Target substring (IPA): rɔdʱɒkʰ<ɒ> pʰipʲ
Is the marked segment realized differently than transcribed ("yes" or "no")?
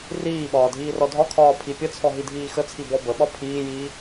yes